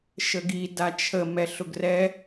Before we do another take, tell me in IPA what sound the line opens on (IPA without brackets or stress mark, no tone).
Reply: ʃ